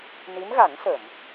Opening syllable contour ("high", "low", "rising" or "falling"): rising